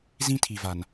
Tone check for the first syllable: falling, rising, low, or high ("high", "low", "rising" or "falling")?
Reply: high